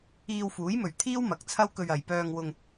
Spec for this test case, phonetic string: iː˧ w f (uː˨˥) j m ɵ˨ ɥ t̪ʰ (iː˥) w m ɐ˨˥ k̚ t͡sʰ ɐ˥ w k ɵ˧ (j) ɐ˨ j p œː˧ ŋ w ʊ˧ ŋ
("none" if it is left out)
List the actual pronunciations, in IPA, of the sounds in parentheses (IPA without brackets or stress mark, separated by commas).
uː˨˥, iː˥, ɥ